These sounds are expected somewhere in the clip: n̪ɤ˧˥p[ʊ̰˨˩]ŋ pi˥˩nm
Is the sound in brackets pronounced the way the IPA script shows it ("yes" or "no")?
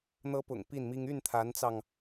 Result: yes